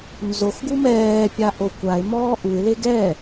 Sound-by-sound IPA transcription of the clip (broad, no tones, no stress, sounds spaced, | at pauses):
n z o x ɡ u m ɛː pʲ a ʔ o kʷ a ɪ̯ m ɔː ʔ u ɪ̯ l e ɡ ɛ